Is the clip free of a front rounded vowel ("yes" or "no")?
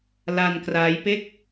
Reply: yes